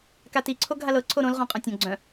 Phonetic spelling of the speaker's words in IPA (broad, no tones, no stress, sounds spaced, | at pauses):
k a t i ǀʰ o ɡʱ a l ɤ ǀʰ o ɾ õ l ʁ õ qʼ œ̃ tʲ õ ɡ͡ǀ œ̃